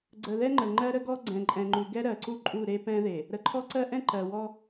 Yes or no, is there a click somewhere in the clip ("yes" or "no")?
yes